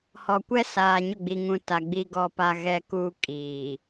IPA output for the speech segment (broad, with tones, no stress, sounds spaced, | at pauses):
h ɔ˨ kʷ ɛ˦ s aː˨ ɲ ʊ˦˨ ɡ͡b i˨ ŋ ũ˨ t a˨ ɡ͡b i˨ ɡ ɔ˨ p a˨ ɣ ɛ˨ k uː˨ kʼ iː˨